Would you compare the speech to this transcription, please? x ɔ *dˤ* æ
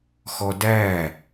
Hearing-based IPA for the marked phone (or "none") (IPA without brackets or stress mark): d